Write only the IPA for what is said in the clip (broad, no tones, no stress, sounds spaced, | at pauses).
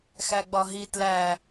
x æ ɡ͡b ɒ ɦ i t l æ